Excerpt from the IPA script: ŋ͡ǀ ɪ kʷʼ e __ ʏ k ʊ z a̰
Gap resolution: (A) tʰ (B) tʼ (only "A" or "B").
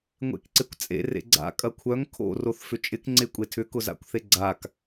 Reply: A